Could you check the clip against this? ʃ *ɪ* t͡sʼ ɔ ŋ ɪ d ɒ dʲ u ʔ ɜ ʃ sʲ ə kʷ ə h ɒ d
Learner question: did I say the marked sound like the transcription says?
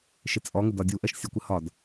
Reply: yes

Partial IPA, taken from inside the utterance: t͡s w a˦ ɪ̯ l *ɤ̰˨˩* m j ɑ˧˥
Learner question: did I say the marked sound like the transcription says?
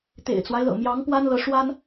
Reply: yes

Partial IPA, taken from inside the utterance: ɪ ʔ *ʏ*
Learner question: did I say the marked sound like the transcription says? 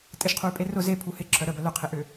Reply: yes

